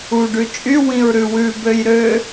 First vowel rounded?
yes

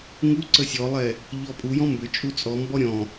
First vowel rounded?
yes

